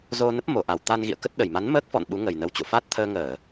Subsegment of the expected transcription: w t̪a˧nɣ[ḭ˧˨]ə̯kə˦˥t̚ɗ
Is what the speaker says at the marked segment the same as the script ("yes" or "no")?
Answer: yes